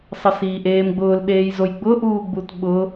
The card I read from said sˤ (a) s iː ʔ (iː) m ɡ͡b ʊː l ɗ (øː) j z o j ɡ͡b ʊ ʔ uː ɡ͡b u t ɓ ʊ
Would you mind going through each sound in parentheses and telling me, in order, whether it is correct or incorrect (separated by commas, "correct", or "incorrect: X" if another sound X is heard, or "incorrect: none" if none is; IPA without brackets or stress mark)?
incorrect: ə, incorrect: eː, incorrect: eː